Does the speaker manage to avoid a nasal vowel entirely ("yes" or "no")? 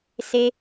yes